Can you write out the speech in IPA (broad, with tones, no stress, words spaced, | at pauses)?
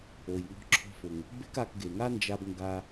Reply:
o˩jŋɔ̤˧ǁʰɔ̤˧fʊ˩ŋ | be̤˥ka˧kɡe˩ ŋa˥nd͡ʒa˧b ŋɡa˧